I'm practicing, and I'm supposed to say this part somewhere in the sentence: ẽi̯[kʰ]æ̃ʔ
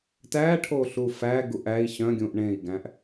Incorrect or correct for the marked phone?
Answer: incorrect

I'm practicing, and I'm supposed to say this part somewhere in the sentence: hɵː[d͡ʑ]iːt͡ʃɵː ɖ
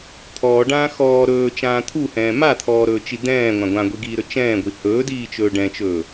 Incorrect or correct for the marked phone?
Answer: incorrect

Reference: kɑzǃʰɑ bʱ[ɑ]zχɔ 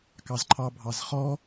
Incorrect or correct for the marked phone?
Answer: correct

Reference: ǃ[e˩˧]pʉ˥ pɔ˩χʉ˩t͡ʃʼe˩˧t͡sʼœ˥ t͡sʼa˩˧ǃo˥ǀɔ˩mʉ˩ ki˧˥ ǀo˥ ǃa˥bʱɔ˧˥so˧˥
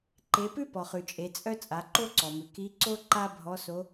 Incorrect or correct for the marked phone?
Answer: correct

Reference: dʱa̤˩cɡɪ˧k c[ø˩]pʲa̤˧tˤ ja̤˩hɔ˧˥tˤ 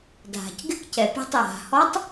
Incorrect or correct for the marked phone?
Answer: incorrect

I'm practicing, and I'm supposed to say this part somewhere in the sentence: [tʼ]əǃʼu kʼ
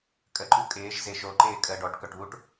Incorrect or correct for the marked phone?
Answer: incorrect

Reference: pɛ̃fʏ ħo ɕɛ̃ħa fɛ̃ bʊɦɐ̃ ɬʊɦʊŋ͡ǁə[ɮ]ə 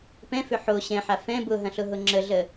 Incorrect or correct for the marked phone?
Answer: correct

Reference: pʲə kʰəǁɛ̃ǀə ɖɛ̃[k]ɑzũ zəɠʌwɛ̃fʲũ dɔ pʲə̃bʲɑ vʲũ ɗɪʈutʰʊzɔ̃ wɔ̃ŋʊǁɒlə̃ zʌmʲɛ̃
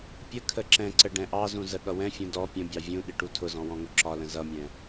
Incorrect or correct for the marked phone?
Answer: incorrect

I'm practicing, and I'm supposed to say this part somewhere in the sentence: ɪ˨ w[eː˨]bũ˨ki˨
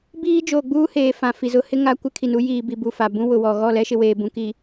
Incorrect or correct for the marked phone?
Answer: correct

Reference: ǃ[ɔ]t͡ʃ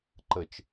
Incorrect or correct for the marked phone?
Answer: incorrect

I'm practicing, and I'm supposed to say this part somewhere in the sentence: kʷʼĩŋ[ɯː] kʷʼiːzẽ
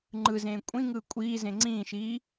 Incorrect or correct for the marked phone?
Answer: correct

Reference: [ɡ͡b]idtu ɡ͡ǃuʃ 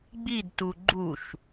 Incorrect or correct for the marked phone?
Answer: correct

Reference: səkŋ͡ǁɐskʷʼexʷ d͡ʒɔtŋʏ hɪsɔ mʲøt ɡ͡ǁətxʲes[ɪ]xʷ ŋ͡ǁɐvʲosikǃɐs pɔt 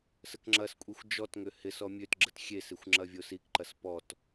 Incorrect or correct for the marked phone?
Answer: correct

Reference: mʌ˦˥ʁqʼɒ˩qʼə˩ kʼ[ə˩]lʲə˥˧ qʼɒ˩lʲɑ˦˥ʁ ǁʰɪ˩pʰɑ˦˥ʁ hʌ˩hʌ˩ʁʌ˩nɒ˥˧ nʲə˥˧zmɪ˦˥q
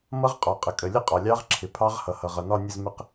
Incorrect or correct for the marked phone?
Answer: correct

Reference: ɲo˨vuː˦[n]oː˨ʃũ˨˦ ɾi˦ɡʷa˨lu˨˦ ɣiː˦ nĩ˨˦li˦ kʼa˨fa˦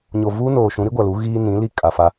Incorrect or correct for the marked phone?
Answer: correct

